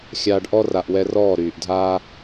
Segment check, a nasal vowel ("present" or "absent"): absent